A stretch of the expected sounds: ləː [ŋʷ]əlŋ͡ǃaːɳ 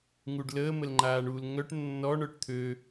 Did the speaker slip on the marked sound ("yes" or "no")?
yes